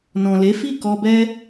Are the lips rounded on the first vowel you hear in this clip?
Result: yes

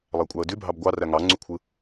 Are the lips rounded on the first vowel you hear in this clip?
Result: no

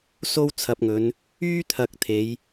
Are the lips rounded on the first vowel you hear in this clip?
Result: yes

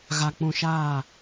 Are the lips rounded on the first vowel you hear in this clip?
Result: no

